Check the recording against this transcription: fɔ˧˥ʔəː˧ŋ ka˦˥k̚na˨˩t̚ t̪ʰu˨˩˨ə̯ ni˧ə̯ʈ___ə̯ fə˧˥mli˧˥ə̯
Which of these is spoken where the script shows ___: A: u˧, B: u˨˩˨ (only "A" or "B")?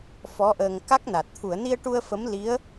A